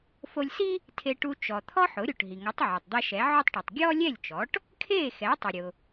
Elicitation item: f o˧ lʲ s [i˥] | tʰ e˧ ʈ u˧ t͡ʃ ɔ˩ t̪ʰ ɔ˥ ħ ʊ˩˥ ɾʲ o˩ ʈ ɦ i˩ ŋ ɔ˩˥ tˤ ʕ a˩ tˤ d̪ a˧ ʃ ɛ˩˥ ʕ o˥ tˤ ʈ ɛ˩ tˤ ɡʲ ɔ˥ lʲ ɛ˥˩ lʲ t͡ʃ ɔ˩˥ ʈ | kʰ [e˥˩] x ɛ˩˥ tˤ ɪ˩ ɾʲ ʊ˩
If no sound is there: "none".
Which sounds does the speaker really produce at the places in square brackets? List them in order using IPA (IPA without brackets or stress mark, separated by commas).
i˥, e˥˩